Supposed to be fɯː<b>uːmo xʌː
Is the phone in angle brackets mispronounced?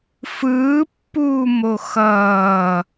yes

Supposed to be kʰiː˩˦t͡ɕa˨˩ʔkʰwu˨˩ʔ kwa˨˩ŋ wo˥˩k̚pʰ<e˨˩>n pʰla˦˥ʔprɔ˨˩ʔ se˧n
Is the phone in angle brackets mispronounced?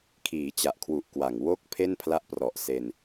yes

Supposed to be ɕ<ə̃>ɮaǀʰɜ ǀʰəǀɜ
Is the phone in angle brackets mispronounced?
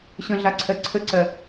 no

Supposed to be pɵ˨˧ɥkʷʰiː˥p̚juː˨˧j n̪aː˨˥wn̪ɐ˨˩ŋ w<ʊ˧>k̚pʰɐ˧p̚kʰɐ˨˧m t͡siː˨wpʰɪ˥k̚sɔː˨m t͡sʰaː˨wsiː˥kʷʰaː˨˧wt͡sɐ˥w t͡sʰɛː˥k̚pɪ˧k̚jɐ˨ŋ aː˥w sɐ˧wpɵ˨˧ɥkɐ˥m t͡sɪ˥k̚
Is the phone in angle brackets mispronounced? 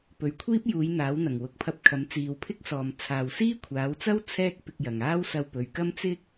yes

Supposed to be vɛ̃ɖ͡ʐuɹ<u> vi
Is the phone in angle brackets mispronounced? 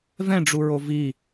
yes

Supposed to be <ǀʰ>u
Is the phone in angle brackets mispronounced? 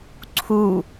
no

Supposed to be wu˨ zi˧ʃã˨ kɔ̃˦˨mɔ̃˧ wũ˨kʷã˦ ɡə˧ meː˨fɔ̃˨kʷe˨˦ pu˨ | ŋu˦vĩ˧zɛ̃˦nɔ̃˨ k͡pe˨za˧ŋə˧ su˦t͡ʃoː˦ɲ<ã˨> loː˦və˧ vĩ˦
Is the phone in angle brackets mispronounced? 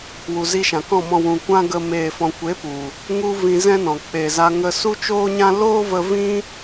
yes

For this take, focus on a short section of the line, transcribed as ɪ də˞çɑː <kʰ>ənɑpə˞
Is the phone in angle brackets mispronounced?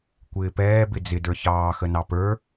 yes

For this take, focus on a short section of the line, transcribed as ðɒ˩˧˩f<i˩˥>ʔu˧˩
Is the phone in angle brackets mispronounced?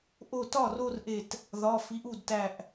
no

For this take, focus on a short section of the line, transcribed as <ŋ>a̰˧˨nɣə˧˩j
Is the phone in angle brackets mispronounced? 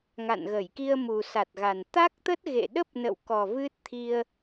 no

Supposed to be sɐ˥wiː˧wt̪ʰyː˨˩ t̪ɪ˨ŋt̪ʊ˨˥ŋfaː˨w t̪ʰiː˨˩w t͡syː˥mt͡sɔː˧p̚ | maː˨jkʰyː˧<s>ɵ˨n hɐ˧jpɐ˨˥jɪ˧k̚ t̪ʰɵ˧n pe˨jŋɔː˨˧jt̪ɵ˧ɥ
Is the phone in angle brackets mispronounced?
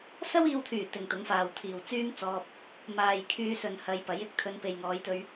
no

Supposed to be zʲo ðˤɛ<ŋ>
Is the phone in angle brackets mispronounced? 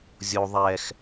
yes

